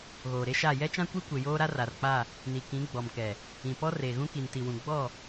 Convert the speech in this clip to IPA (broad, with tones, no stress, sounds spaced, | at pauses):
ɣ oː˨ ɾ e˦ ʃ a˦˨ j ɛ˦ t͡ʃ ã˦ kʷ i˦ kʷ e˨ j oː˦ ɾ a˦ r a˨ r k͡p a˦˨ | n i˨ k ĩ˨˦ ɡ͡b ɔ˨ m k ɛ˨ | ĩ˨ p ɔ˦ r eː˨ ɣ ũ˦ k i˨ n t i˨ w ũ˨ ɡ͡b ɔ˦˨